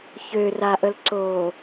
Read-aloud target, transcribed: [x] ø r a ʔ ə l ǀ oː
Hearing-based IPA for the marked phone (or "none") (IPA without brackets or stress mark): ç